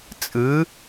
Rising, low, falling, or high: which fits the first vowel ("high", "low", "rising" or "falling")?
rising